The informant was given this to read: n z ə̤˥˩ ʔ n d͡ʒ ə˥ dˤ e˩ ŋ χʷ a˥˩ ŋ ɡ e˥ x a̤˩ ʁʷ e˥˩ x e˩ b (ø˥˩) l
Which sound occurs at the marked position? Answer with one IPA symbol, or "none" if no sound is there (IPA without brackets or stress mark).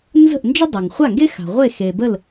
ə˥˩